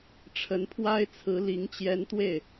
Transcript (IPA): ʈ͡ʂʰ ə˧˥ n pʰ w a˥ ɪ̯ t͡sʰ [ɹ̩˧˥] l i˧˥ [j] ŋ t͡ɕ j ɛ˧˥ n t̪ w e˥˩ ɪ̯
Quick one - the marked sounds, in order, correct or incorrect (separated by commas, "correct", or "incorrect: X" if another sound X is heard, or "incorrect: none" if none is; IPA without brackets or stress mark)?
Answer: correct, incorrect: none